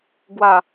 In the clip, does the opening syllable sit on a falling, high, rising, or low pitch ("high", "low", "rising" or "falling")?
falling